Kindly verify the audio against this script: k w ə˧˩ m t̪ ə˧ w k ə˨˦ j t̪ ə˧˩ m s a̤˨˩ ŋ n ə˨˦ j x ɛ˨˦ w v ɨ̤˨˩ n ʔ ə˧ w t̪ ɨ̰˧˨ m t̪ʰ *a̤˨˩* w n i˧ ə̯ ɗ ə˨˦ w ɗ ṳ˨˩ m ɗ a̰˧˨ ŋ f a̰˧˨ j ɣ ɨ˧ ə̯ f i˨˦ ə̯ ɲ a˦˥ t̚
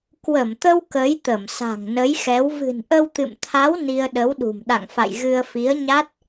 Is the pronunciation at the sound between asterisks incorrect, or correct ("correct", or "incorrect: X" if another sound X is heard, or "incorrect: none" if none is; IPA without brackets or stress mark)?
incorrect: a˨˦